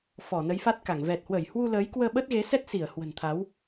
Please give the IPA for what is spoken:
f ɔ˧˩ n ə˨˦ j f a˦˥ t̚ k a˧˩ ŋ v ɛ˨˩ t̚ h w ə˧˩ j h w u˧ l əː˨˦ j k w əː˧ ɓ ə˦˥ t̚ ɣ e˨˦ s ɛ˦˥ t̚ s i˧˩ ə̯ h w ə̤˨˩ n t̪ʰ a˨˦ w

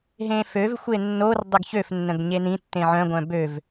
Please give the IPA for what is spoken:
ɦ ẽ f ø v xʷ e nː o r dˤ ə ɡ ç ø f nː ə̃ ɡ ɲ e n ĩ tː ẽ ʕ œ̃ ɡʷ œ̃ b ø v

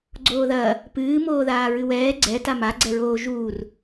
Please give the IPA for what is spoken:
ɡ͡ǀ oː ð ɐː | p ɨː m oː ð aː ɹ ɨ w ɛː ɡ͡ǀ ɛ t a m a ɡ͡ǀ ɛ ɹ oː ʒ uː r

